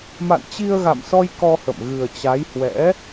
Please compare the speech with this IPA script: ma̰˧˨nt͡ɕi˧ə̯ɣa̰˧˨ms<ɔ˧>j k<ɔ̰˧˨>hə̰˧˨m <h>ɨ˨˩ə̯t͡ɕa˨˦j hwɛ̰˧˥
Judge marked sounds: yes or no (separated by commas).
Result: yes, no, no